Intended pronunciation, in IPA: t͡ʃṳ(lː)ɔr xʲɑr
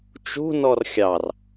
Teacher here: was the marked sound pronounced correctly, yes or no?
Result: no